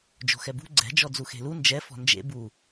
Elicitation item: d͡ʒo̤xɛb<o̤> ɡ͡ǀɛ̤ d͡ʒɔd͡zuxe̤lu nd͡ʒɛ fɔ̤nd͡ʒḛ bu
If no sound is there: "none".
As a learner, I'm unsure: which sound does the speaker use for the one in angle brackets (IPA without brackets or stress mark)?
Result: ṳ